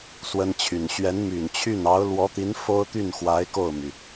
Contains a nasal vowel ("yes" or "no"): no